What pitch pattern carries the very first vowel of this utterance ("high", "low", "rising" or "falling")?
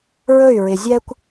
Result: falling